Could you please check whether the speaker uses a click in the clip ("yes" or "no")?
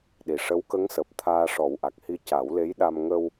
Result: no